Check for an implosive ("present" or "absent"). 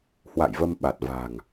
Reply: present